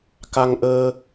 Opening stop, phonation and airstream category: plain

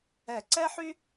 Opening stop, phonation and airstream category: click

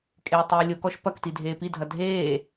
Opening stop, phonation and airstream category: ejective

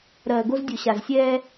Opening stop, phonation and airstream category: plain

